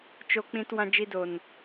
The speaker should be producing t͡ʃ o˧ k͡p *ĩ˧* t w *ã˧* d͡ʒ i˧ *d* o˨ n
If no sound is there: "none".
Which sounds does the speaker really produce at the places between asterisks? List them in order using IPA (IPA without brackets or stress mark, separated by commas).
ĩ˧, ã˧, d